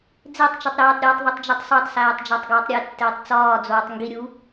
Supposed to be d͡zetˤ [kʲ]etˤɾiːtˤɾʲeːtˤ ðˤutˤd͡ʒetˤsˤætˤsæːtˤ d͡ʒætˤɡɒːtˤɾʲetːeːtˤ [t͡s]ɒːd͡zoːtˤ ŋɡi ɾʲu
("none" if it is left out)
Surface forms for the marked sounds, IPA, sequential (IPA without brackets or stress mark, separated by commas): t͡ʃ, t͡s